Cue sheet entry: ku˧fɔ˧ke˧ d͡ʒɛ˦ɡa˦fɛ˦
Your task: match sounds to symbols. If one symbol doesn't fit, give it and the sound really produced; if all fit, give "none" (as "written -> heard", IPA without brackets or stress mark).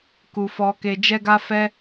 none